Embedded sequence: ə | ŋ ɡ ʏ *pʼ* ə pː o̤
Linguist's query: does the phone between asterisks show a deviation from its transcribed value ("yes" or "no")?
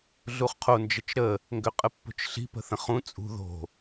yes